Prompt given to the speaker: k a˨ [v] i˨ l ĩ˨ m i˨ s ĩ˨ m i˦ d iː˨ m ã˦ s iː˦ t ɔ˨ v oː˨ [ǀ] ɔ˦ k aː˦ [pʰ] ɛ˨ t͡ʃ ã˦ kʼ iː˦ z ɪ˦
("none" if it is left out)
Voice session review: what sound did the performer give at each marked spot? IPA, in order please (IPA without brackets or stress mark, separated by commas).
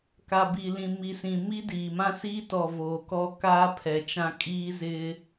b, k, pʰ